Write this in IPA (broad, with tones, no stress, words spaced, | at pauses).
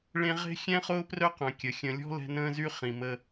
ɭẽ˦ʁe̤˥ xʲɛ̃˥ χʊː˦prœ˦qœ̃˩ kʲə˩xʲə̃˨lʲɔ̤˥ lɛ̤˦nə̃ː˥zy˥ χĩ˩mə˨